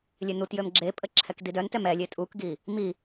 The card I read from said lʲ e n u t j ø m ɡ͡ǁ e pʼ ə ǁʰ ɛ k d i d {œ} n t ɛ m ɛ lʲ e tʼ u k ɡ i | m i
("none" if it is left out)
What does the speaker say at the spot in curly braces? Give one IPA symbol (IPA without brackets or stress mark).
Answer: œ